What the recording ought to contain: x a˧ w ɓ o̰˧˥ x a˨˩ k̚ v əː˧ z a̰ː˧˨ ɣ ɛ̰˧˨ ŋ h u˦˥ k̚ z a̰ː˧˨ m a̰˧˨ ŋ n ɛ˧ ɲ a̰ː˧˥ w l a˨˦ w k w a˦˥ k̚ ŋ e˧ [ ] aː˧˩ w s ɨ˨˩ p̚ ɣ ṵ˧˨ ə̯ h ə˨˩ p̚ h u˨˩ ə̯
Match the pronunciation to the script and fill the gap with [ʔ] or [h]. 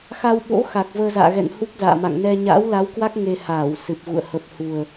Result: h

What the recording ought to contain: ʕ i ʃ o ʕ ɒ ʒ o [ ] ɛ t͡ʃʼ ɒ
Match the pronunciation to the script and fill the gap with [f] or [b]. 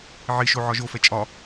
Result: f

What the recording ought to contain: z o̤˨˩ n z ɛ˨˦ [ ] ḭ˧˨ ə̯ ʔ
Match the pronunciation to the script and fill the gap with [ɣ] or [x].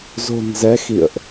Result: x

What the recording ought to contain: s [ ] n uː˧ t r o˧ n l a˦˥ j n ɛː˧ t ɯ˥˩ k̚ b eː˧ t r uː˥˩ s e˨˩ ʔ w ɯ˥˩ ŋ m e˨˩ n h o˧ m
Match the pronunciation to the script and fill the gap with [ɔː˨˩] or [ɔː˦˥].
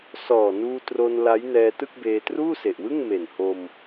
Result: ɔː˨˩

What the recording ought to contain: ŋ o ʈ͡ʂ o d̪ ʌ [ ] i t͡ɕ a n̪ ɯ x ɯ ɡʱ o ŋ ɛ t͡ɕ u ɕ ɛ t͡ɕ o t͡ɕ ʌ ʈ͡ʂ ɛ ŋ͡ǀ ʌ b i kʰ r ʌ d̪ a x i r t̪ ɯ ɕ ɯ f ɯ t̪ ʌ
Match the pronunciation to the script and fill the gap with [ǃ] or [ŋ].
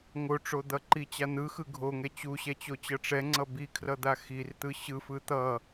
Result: ǃ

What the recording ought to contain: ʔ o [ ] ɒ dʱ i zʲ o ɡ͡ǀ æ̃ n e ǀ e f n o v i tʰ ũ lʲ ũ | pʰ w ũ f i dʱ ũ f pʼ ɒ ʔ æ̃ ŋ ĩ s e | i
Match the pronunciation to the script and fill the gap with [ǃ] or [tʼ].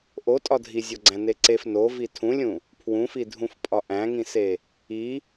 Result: tʼ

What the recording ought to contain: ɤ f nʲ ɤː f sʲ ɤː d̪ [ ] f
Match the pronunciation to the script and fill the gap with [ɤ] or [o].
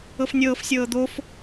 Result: o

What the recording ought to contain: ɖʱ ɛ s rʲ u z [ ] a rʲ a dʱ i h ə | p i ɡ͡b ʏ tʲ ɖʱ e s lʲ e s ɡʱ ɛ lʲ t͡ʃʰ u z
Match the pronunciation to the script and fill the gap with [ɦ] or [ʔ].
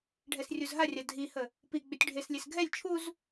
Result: ɦ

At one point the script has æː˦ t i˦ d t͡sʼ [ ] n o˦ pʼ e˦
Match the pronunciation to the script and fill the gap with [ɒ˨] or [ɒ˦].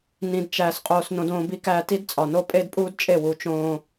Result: ɒ˨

